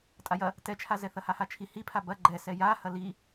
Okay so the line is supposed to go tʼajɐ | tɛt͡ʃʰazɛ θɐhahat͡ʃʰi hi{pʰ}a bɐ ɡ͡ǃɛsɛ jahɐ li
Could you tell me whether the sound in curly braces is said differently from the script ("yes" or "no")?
no